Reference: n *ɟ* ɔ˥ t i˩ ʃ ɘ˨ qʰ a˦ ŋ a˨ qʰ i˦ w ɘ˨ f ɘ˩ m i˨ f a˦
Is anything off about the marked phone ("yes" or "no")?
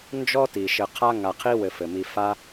yes